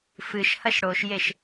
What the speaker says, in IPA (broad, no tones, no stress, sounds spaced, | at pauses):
f ɨ ʃ h ɐ ʃ ɽ o ʃ j e ʃ